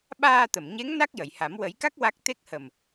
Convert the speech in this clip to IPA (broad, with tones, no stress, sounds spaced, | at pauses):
ɓ aː˧ t̪ ə˨˩˨ m ɲ e˧˥ ŋ n a˦˥ k̚ j ə˨˩˨ j h a˨˩˦ m w ə˨˩˦ j k a˦˥ k̚ w a˦˥ k̚ t̪ e˦˥ k̚ h ə˨˩ m